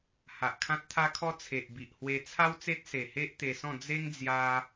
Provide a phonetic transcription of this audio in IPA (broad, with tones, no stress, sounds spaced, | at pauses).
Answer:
h a˨ ʔ kʰ ã˦ t̚ t̪ʰ a˦ kʰ ɔ˦ t͡sʰ e˨ ʔ b i˨ ʔ h w e˧ t͡sʰ a˦ w t͡s e˦ t̚ s e˨˩ h e˦ ʔ t̪ e˧ s ɔ̃˥˧ d͡z e˦ ŋ d͡z j a˦